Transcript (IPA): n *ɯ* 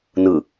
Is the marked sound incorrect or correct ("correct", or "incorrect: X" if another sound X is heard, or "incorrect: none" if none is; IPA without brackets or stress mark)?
correct